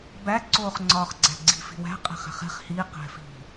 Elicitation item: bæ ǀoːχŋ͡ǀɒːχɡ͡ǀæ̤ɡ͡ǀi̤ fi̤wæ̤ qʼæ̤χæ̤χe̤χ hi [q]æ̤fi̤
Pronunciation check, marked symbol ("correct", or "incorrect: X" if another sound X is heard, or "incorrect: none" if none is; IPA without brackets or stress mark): correct